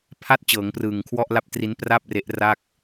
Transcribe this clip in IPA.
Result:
pʰ a˥˩ t̚ t͡ɕ ɤː˩˦ ŋ p r ɯː˨˩ ŋ kʰ w ɔ˥˩ ʔ l a˥˩ p̚ t r i˦˥ n p r a˥˩ p̚ r e˦˥ ʔ r a˥˩ k̚

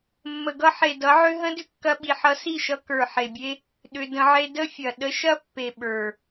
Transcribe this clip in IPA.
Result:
mː ə˨ ɡ ʌ˧ ħ e˨ d ʌ˨˦ ʕ ʏ˦ ɦ ə̃˦ d ʏ˦ kː ɐ˧ ɓ i˨ ħ ʌ˧ s i˦˨ ʃ ʌ˧ k ə˞˨ ħ e˨ bʲ e˦ | ɗ ʏ˧ d ə̃˧ ʕ e˦ d ə˦ fʲ ɐ˨ ɗ ə˧ ʃ ɐ˦ pː e˨ ɓ ə˞˨

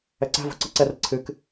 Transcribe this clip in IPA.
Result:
ɛ ǀ æ̤ v o̤ ǀ ɨ ǀ ɛ r ə ǀʰ ɨ k

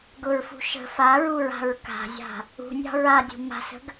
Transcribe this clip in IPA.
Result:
ɡ ʊ ɹ f ṳ ʃ ə̤ f a ɹ u ɹ a̤ ɹ k a̤ zʲ a̤ | ṳ nʲ ɑ̤ ɹ a dʲ ṳ m a̤ s ə̤ ɡ

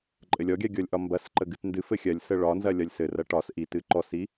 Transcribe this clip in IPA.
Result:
ǃʼ ɘ lʲ ɔ ɡʲ a ɡʲ ɔ lʲ ʔ ɒ m b ɐ s ǃ ə ɡ ɨ t n d ɨ f ɘ xʲ ɐ lʲ s ə ɭ ɒ n z ɐ lʲ ɒ lʲ s ɘ r ɐ ʈ ɒ s ʔ i t ɨ ǃ ɔ s i

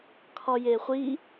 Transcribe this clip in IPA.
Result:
kʰ ɒ j e χʷ i

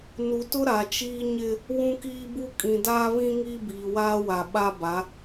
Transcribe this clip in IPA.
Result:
n u˨ t ʊ˦ ɾ a˨ t͡ʃ iː˦ ɲ ɪ˦ | w ũ˦ k iː˦ b u˦ kʼ ĩ˨ d aː˦ β ĩ˦ ŋ iː˦ b iː˨ w aː˦ w a˨ ɓ a˦ b a˨˦

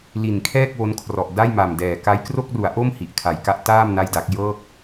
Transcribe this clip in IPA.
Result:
l i˨˩ n kʰ ɛː˥˩ k̚ w o˦˥ n kʰ r ɔ˨˩ ʔ d a˥˩ j m a˨˩ m d ɛː˨˩ k a˦˥ j k r o˥˩ k̚ r u˩˦ a̯ ʔ o˥˩ m h i˨˩ ʔ kʰ a˩˦ j k a˦˥ ʔ t aː˥˩ m n a˥˩ j d a˦˥ k̚ j ɤː˥˩ k̚

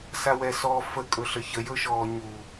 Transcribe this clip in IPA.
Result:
s a w ɛ s ɔ f ə kʼ ɵ ɬ ə ç ə j ɵ ʃ ɔː ɲ u

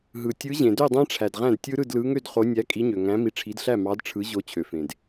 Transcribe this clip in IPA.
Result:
ɦ ɯ˩ tʲ ɯ˨˦ ʑ ẽ˩ d ø˥˨ dˤ æ̃˦˥ ʈ͡ʂʰ æ˩ d ʁ æ̃˥˨ d tʲ ɯ˦˥ ɾ ɯ˥˨ d l ɯ˨˦ ŋ ø˥˨ d χ o˨˦ nʲ æ˨˦ kʼ i˨˦ ɲ ø˩ ŋ æ̃˨˦ m i˨˦ ʈ͡ʂʰ i˨˦ d ɬ æ˥˨ m ɑ˨˦ d ʈ͡ʂʰ ɯ˨˦ ʑ o˨˦ t͡ɕʰ ø˩ f ẽ˩ d

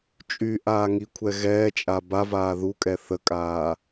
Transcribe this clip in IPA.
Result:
t͡ʃʼ y ʔ aː ŋ i kʷʰ ɛ ɣ ɛː t͡ʃʼ a b a v aː ð u kʼ ɛ θ ə kʼ aː

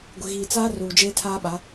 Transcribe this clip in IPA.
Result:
ɡʷ ɪ˨ ɣ iː˨ t͡s aː˦ r uː˨ d͡ʒ eː˦ tʰ aː˦ ɓ a˨˦

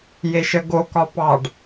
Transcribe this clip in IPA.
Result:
j e ʃ ə ɡ o k ɒ p ɑ ɖ

